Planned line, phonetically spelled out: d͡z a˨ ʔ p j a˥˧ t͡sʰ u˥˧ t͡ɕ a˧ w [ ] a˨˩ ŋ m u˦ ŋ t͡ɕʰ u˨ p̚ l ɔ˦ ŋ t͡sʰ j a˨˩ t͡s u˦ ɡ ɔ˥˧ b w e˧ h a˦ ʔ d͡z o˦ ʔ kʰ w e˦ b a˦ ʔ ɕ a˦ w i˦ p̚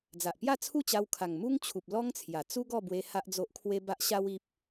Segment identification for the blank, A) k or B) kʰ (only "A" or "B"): B